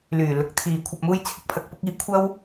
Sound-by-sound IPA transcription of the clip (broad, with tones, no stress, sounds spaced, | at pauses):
l yː˨˩ l ʊ˨˥ k̚ t̪ʰ iː˨ kʷʰ ɐ˨ p̚ m uː˧ j t͡sʰ ɪ˨ k̚ pʰ ɐ˨ k̚ p ʊ˨˥ k̚ iː˧ kʷʰ ɐ˥ w